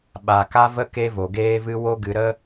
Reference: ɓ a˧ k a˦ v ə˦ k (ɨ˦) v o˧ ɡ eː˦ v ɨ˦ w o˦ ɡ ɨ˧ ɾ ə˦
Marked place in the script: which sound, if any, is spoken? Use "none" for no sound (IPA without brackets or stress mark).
e˦